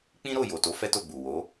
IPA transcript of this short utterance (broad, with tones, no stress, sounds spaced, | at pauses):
k͡p ĩ˦ ɾ o˦˨ j o˨ t o˨˦ f ɛ˦ t o˦˨ ɡ͡b u˨ w o˨˦